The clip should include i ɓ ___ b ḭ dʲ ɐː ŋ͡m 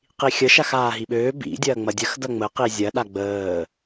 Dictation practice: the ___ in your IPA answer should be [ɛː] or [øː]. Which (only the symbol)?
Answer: øː